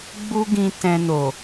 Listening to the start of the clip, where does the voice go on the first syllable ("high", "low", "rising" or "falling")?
high